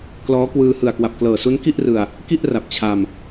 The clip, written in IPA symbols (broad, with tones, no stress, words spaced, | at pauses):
klɔː˦˥kwɯː˧ hɯ˨˩a̯kwa˨˩p̚klɤː˨˩ su˦˥nki˥˩ʔrɯ˧a̯ | ki˥˩ʔ ra˨˩p̚t͡ɕʰa˧m